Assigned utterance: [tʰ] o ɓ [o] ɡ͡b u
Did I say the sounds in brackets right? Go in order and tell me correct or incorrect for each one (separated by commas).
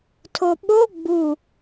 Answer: correct, correct